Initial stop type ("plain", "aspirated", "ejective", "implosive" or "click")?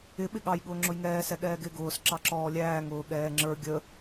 implosive